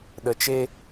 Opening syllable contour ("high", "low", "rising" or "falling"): low